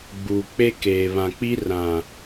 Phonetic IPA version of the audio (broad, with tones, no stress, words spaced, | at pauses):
ɡ͡buː˨k͡pe˦ keː˨βã˨k͡pi˦ rã˨